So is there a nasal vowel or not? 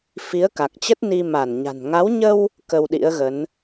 no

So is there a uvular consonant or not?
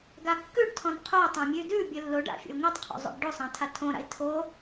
yes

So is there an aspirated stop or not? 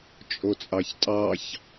no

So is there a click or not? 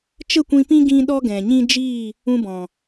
no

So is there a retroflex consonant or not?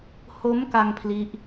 no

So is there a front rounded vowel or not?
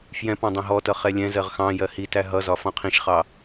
no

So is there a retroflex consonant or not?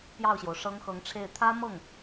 yes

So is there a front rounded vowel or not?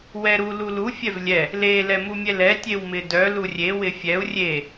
yes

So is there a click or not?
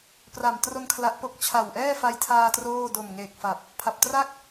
no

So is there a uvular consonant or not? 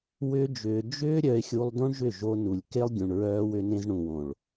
no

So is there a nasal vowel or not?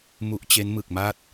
no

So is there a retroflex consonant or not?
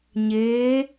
no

